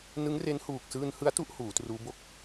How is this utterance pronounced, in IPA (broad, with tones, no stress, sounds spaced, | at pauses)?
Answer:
n ɯ˦˥ ŋ r e˦˥ n h uː˨˩ k̚ s ɯː˧ n h ɯ˦˥ a̯ t u˦˥ ʔ h uː˩˦ t r uː˦˥ b o˦˥ k̚